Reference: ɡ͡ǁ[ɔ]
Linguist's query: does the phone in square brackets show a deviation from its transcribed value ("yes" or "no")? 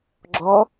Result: no